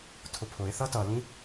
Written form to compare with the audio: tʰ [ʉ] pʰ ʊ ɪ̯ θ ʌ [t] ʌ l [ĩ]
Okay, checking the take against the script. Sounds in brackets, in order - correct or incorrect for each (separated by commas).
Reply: incorrect, correct, correct